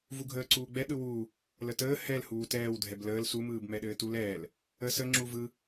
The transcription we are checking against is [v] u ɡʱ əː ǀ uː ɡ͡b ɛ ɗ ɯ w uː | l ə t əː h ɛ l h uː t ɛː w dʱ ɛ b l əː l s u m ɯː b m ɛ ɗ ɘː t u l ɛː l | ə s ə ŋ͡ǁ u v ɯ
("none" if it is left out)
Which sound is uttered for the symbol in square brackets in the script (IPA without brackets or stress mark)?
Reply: v